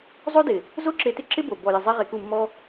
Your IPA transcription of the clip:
zˤ o˦ d ɪ˨ | z o˦ ǁ e˧ t ɪ˦ ǁ ɪ˦ b o˨ b ɔ˨ j ɪ˨ zˤ ɛ˦ ʁ e˧ k u˦˨ mː ɔ˦

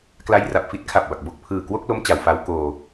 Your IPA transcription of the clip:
k l a˧ j r a˨˩ p̚ f i˥˩ t̚ kʰ a˨˩ p̚ b a˨˩ k̚ b o˦˥ k̚ pʰ ɯː˨˩ k w o˥˩ k̚ l o˦˥ m t͡ɕ a˩˦ w f a˦˥ w k oː˧

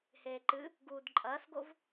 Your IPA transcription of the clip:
h eː ǃ ɨ | ɡ uː d ǃʼ ɐː s ɡ o v

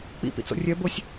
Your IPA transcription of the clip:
k͡p ḭ p ḭ t͡s o̰ rʲ œ b o sʲ

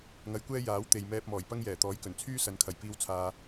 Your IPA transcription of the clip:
ŋ ɐ˨˧ j kʷ ɛː˥ j aː˨˥ w t̪ e˨ j m ɛː˧ p̚ m ɔː˨˩ j p ɐ˥ ŋ j ɛː˨˩ t̪ ɔː˨˥ j k ɵ˨˩ n t͡sʰ yː˥ s ɐ˨˥ n kʰ ɐ˨˩ j p iː˧ w t͡sʰ aː˨

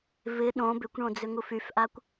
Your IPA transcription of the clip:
v ɪ ɗ õ b ʏ kʷ ɳ õ d͡z ʏ ŋ u f y f ʔ a kʷ

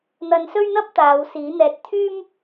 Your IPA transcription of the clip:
n̪ ɐ˧ n s ɵ˥ ɥ n̪ ɐ˥ p̚ t̪ aː˨˧ w s iː˨˥ n̪ ɛː˧ t̚ t̪ʰ yː˥ m

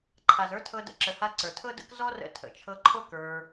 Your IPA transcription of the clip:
ǃʰ a˨ z ə˞˦ tʰ ɤ˧ d ə̰˧ ǁ ə˨ h a˧ ǀ ə˞˨ tʰ ɤ˦ d ə̰˦ k z ɔ˦ r ə̰˧ tʰ ə̰˨ t͡ʃʰ ɤ˧ ǃʰ o˦ k ə˞˧

